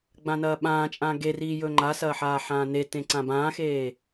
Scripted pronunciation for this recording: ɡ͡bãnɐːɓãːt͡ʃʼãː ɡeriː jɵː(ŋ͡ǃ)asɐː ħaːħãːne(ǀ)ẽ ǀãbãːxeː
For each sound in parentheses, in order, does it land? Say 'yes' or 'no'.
yes, no

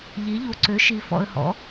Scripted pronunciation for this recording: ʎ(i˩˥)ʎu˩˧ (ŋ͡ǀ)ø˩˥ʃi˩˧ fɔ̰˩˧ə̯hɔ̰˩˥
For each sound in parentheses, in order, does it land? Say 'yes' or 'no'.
yes, no

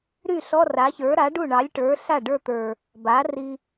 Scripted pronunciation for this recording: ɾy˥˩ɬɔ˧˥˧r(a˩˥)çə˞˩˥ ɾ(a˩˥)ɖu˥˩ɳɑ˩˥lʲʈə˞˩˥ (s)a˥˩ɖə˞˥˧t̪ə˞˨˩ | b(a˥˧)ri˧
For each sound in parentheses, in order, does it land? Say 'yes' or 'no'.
yes, yes, no, no

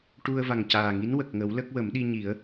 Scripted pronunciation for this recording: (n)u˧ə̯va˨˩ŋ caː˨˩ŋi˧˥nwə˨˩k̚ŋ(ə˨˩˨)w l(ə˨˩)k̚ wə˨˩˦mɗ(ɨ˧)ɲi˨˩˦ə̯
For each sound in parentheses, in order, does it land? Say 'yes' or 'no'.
no, no, no, no

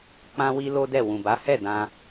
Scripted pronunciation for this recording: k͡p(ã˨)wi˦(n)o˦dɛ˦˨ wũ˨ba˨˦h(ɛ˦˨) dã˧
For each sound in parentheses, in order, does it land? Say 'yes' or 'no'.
no, no, yes

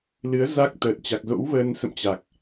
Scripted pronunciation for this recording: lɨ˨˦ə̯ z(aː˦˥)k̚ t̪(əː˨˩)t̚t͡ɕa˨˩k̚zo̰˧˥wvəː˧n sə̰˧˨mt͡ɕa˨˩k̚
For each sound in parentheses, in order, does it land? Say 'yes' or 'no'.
no, yes

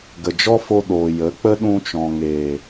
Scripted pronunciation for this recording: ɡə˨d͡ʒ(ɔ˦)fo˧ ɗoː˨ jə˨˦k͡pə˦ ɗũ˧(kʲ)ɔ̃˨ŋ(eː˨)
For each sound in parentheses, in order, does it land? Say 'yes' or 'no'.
yes, no, yes

